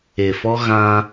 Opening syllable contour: low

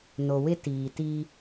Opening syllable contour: low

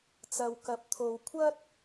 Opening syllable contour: low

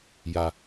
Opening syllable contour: low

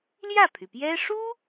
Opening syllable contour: falling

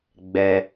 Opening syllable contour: low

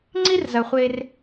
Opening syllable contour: high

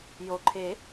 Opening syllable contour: low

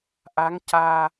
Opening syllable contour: rising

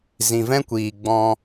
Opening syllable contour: low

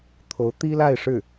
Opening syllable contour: rising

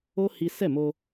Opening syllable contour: high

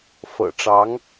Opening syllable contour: low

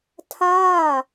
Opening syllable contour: falling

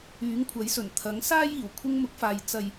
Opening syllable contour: rising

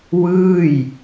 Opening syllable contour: falling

